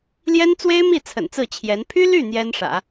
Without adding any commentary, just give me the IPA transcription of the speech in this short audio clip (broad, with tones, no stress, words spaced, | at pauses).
ljɛ˥nt͡swe˥ɪ̯mi˥˩ t͡sʰə̰˨˩nt͡sɹ̩˥˩t͡ɕʰjɛ˧˥n pʰy˥ly˥˩ n̪jɛ˥nʂä̰˨˩˦